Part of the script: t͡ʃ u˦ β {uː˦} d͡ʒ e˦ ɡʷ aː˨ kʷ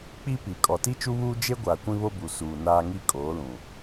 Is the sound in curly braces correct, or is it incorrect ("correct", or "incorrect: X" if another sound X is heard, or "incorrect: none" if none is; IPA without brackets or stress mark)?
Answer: correct